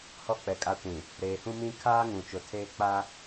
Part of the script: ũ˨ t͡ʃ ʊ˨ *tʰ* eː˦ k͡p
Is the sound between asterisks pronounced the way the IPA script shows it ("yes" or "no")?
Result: yes